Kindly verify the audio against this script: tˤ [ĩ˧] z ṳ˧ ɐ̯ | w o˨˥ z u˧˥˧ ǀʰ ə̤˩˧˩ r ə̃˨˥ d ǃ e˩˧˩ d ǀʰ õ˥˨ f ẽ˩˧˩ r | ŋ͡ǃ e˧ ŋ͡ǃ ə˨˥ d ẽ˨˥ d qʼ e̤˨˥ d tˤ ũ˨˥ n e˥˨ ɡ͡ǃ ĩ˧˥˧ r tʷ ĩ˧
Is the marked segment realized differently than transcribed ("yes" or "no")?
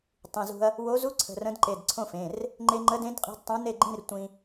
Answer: yes